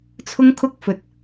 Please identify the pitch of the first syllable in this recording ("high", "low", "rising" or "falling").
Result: high